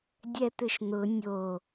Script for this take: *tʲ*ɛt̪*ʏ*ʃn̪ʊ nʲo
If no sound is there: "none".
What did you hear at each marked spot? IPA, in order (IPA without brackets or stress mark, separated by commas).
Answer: dʲ, ʏ